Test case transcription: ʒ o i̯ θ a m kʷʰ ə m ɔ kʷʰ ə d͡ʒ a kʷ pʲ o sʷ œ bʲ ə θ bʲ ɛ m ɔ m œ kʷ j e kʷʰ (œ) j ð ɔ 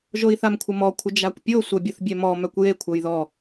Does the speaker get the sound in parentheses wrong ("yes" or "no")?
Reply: no